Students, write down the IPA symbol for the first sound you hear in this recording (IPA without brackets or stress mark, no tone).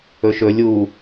ɵ